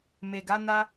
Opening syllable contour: low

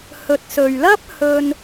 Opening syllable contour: low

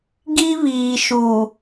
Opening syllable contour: high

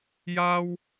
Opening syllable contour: high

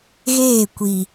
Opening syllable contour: falling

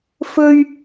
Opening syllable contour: low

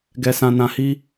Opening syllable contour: low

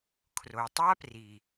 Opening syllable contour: low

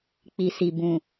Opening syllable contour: low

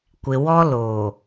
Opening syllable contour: low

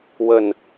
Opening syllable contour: falling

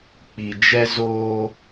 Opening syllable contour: low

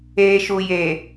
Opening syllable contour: low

